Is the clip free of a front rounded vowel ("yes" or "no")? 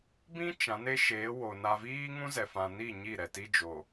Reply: yes